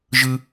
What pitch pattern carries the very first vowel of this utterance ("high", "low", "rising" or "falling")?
high